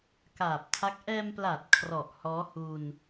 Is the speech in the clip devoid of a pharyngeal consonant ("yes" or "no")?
yes